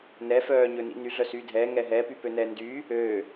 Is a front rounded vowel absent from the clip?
no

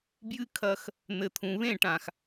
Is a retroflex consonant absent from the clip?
no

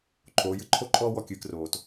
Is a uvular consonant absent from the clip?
yes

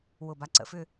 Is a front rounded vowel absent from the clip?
no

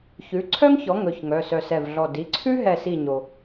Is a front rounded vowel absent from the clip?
no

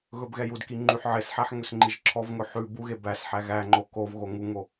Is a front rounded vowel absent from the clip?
no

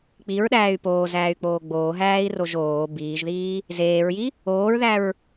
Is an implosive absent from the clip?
no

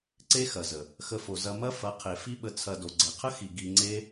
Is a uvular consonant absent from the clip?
no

